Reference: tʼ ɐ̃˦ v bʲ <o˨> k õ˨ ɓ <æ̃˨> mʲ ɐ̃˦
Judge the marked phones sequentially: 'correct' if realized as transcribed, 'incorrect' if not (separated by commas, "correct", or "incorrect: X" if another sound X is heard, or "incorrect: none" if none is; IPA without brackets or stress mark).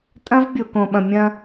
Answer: correct, incorrect: ɐ̃˨